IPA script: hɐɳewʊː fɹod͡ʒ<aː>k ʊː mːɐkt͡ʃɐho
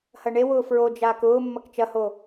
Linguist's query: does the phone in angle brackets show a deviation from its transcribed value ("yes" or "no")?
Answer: no